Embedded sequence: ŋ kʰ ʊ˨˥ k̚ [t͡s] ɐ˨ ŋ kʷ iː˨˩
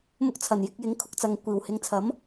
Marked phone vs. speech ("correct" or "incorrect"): correct